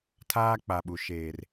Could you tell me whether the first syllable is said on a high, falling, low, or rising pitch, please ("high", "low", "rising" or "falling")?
high